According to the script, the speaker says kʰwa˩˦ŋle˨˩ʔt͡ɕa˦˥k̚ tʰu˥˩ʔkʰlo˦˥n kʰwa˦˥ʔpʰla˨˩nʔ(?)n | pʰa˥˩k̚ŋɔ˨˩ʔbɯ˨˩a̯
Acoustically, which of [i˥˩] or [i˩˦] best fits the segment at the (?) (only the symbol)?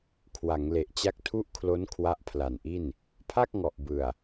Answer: i˥˩